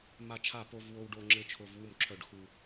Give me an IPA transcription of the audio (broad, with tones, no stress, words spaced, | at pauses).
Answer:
ma˦t͡ʃʰa˥˨ po˦vwo˦wɖo˦ŋ͡ǁɘ˦ t͡ʃʰo˦vwu˥˨mǁʰœ˥˨ɖxu˦